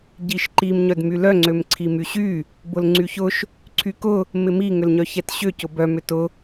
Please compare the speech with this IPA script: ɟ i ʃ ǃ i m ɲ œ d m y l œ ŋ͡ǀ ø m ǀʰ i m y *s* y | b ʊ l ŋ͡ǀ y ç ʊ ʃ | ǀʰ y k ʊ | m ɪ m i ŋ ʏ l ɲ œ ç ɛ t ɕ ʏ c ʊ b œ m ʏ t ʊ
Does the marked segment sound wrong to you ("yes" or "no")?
yes